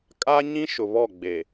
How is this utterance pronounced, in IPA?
kʼ a˦ ɲ ĩ˦ ʃ ʊ˨ β ɔ˦˨ ɡ͡b e˨

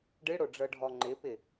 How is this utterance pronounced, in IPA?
ɖ ɨ ɽ o ɖ͡ʐ ɤ ɖʱ ɔ ŋ͡ǃ ɪ p ɪ

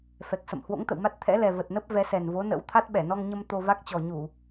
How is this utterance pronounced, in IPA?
f ɛ˨˩ k̚ s ə̰˧˨ m h w o̰˧˥ ŋ t̪ ə̰˧˨ w m a˦˥ t̚ t̪ʰ ɛ̰˧˥ l ɛ˨˩ v ə˨˩ t̚ n ə˦˥ p̚ v ɛ˨˦ s ɛ˨˩ n v o˨˦ n ə̰˧˥ w t̪ʰ a˦˥ t̚ ɓ ɛ˧˩ n ɔ˧ ŋ ɲ ə˧ m t̪ o˧ v a˦˥ k̚ t͡ɕ ɔ˨˩ ɲ u˧˩˨

